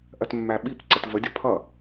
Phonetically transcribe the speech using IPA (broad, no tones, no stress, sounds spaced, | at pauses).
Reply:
ʔ ɜ t mː æ ɓ i p ǀ ə t v ə dʲ ʌ pʰ ʌ